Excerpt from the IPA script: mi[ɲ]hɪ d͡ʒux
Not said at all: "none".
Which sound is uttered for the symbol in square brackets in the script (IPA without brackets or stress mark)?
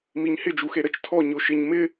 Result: ɲ